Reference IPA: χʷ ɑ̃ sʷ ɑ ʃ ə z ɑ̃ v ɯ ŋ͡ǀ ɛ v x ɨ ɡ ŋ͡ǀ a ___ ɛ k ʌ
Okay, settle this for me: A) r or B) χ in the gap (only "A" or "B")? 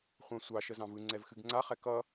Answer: B